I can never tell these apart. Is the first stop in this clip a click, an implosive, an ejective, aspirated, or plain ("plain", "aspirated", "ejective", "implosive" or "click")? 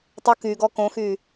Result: plain